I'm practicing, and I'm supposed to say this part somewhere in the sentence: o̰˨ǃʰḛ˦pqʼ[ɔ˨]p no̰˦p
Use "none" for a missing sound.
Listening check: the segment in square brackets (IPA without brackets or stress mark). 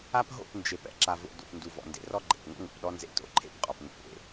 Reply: ɔ˨